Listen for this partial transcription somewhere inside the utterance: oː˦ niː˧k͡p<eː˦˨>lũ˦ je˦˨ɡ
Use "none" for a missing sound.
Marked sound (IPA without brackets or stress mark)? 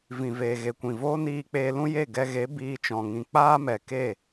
eː˧